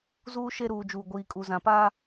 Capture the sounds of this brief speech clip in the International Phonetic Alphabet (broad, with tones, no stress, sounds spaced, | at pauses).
z uː˦ ʃ e˦ ɾ uː˨ d͡ʒ uː˨ ɡʷ iː˨ kʼ u˨ z ã˨ p aː˦